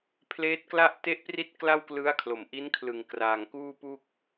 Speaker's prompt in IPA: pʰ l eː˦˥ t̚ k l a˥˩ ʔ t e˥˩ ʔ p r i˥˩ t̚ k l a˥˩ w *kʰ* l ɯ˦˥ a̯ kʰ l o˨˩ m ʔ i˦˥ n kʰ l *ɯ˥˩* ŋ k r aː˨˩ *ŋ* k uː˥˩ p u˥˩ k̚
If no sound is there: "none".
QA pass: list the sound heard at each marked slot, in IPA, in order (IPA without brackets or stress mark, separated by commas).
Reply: k, ɯ˨˩, ŋ